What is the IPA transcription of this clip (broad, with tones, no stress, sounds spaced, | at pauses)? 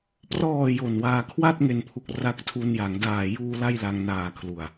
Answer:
p r ɔː˨˩ j o˨˩ n w aː˧ kʰ w a˥˩ t̚ ŋ e˨˩ n pʰ u˨˩ k̚ r a˦˥ k̚ tʰ u˧ n j a˩˦ ŋ d aː˨˩ j uː˧ l a˥˩ j l a˧ ŋ n aː˨˩ kʰ l u˨˩ a̯